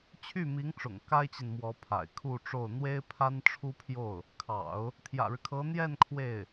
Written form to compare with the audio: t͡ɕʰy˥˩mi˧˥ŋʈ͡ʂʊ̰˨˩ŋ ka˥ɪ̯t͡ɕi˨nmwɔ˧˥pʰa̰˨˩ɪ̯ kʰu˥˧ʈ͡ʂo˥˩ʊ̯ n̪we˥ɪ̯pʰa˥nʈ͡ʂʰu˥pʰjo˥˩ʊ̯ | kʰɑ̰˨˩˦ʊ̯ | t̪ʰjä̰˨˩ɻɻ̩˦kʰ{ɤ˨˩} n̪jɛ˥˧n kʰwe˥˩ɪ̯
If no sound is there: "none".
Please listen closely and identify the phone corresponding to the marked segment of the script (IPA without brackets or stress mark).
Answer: ɤ˧˥